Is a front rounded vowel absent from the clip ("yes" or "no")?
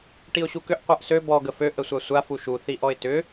no